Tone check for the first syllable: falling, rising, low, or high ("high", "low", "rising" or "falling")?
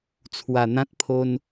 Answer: low